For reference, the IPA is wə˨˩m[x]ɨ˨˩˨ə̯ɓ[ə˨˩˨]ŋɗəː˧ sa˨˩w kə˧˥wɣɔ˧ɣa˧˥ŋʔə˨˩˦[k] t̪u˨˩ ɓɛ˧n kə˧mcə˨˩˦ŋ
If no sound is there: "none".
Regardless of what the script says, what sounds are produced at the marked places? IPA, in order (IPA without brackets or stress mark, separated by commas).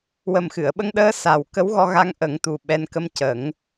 x, ə˧, ŋ